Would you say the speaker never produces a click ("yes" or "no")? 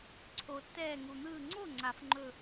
no